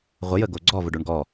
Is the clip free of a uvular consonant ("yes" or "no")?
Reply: no